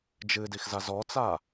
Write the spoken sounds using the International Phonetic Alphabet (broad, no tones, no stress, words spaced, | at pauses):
d͡ʒɨdixza zɔt͡sa